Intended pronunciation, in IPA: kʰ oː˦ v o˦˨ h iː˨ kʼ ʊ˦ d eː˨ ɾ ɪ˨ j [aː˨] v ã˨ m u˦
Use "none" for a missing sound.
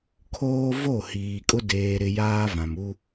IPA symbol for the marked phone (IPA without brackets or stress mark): aː˦